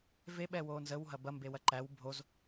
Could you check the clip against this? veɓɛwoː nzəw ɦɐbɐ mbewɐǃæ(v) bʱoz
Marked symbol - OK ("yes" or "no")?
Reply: no